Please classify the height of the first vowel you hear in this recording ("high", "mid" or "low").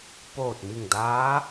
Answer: mid